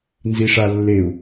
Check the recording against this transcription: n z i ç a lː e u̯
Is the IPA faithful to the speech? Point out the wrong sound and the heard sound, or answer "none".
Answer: ç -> ʂ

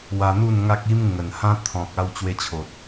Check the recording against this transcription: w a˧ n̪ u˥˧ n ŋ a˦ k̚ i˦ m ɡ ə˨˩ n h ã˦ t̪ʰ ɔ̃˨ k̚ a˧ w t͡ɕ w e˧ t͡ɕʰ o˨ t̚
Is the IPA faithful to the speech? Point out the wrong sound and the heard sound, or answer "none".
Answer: ɡ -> ŋ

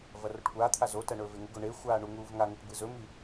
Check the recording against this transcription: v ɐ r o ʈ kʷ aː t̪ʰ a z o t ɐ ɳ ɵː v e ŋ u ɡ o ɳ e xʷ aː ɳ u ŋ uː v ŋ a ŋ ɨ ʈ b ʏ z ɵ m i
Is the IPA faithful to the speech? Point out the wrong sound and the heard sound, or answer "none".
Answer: ʏ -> ɨ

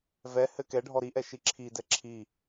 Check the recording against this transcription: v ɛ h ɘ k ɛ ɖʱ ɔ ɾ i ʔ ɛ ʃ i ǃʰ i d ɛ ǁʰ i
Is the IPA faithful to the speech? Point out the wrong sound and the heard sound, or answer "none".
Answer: ǃʰ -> ǁʰ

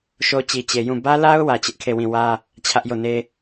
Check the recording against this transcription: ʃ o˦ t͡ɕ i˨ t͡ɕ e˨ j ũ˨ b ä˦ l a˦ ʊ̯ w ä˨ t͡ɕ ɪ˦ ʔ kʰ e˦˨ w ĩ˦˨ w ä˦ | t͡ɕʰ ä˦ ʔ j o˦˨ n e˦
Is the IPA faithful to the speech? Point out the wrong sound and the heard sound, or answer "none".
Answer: ũ˨ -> ũ˦˨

